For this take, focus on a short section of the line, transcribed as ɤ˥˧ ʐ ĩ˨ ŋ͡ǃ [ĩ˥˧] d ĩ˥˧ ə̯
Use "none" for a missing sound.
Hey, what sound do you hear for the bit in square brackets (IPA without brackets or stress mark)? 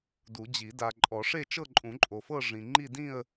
i˥˧